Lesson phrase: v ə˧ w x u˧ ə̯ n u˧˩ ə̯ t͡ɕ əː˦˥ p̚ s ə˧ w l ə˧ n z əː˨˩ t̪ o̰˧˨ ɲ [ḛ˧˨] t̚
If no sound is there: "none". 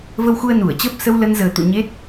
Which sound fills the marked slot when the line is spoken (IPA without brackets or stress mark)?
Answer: e˦˥